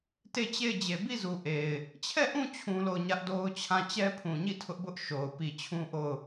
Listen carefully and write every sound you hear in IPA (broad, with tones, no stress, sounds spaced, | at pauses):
t e˦˨ t͡ɕ e˦˨ ɪ̯ d͡ʑ e˨ b i˦˨ z u˨ ʔ e˨ ɪ̯ | t͡ɕʰ ɛ˦˨ ʔ ũ˦˨ t͡ɕʰ ũ˦ l o˦˨ ʊ̯ ɲ ä˦ ʔ d o˦ ʊ̯ t͡ɕʰ ã˦˨ t͡ɕ ɛ˦ pʰ ũ˨ ɲ i˦˨ tʰ ʊ˦ ʔ b ʊ˦ ʔ ʃ o˨ ʊ̯ p i˨ t͡ɕʰ ũ˦ ʔ o˦˨ ʊ̯